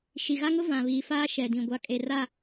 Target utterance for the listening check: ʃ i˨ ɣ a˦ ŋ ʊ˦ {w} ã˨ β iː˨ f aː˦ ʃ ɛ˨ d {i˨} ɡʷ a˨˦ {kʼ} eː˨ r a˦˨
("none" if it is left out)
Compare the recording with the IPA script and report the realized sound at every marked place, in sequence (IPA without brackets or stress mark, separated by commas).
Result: v, ĩ˨, kʼ